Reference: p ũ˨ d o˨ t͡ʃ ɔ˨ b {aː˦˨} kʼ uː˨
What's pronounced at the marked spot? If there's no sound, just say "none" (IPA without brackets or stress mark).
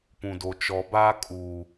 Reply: aː˦